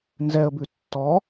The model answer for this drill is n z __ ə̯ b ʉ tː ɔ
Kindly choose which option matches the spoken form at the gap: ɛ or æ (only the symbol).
ɛ